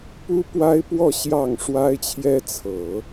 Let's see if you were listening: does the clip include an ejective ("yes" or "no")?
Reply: no